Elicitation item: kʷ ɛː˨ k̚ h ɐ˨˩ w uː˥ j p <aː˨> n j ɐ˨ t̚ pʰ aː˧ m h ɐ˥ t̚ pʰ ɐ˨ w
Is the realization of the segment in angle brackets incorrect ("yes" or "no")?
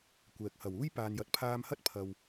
no